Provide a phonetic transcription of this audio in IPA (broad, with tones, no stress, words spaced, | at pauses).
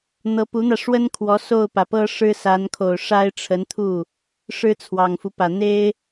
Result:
n̪ɤ˧˥pu˧˥n̪ä˧ʂwə˥n kʰwɔ˧˥so˥˩ʊ̯pä˩pɤ˥ ʂɻ̩˥sa˧˥nkʰo˨˩ʊ̯ʂa˥ɪ̯ ʈ͡ʂʰə˧˥nt̪ʰu˥˩ | ʂɻ̩˥t͡sʰwɑ˨˩ŋfu˦pä˨˩ n̪e˥ɪ̯